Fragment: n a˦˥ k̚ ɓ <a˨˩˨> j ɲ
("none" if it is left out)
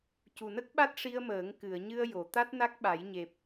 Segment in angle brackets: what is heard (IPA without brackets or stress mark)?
a˨˩˦